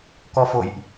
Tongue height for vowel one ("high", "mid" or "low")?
mid